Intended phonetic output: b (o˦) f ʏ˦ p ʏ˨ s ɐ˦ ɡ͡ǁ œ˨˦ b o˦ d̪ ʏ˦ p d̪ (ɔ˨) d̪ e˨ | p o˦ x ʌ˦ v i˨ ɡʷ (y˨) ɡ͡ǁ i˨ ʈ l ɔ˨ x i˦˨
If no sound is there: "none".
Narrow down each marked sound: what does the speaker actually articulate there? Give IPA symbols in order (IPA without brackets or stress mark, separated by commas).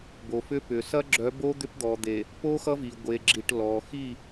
o˨, ɔ˨, e˨